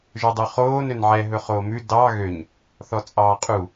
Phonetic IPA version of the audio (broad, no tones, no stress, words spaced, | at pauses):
ʒɵdˤʉχoːn ønʕɛ ɦɵχoːmʉ dɑ ɣøɲ | θɔt͡sʼɑːqʼu